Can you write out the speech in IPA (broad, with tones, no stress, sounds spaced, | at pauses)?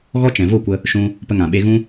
ɣ ɔ˦ t͡ʃ ɛ̃˨ v o˦˨ kʷ ə˧ | ʃ ũ˧ | p ə˧ ŋ ã˨ ɓ e˧ ɣ ũ˦